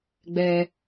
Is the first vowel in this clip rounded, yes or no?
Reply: no